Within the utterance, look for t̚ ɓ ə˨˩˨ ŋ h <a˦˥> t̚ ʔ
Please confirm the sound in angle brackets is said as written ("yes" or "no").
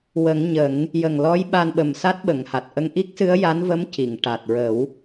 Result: no